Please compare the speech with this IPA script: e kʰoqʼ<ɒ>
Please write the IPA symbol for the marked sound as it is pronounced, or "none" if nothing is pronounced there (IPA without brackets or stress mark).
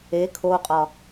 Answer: ɒ